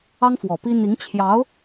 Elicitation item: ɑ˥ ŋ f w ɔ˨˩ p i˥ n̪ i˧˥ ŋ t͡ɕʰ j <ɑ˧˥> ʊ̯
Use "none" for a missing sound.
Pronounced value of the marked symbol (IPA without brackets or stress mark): ɑ˧˥